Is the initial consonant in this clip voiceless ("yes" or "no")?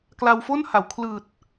yes